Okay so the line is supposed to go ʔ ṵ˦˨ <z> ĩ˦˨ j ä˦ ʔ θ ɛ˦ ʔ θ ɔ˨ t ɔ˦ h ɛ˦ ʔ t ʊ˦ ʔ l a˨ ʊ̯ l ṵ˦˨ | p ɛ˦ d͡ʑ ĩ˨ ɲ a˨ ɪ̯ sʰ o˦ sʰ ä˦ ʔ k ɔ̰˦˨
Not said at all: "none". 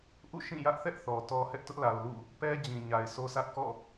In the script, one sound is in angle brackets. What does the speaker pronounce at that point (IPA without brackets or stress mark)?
ʃ